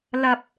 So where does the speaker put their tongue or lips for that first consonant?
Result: tongue tip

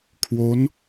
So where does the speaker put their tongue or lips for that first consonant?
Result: velum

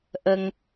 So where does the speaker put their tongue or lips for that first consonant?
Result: throat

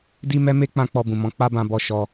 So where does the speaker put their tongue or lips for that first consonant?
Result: tongue tip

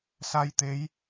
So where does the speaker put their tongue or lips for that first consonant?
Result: tongue tip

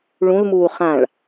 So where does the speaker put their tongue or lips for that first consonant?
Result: retroflex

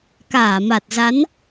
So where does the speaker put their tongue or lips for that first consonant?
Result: velum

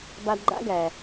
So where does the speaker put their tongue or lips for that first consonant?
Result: lips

